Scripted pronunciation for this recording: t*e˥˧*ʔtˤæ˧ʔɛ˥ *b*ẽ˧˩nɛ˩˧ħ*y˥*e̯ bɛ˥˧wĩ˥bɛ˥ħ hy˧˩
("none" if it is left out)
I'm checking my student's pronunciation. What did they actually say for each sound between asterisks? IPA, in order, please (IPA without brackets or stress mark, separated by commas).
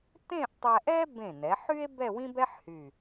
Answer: ẽ˥˧, b, y˥